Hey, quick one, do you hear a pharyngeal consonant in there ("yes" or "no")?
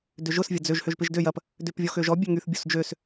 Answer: no